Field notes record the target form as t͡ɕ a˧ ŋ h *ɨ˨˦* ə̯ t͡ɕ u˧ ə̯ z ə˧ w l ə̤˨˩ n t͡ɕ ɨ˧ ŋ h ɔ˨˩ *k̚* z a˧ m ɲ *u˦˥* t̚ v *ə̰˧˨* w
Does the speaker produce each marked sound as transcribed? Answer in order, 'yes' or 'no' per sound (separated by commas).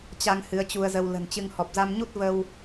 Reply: yes, no, yes, no